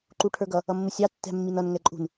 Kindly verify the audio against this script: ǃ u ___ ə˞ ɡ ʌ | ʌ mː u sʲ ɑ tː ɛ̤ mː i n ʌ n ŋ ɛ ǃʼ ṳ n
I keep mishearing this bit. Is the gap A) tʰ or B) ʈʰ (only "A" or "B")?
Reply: B